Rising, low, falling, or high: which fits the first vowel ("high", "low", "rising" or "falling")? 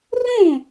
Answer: falling